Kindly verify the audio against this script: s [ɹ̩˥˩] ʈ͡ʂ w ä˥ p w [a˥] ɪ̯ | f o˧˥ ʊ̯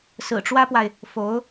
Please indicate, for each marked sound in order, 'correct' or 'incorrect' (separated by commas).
incorrect, incorrect